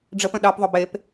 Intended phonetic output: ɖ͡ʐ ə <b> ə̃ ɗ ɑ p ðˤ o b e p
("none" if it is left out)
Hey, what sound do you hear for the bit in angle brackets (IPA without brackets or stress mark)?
p